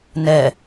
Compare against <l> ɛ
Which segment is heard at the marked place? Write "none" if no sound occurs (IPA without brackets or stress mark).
n